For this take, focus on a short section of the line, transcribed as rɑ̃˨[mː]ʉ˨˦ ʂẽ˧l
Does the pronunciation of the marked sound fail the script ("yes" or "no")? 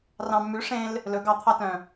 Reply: no